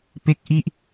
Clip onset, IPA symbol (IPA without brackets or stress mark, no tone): p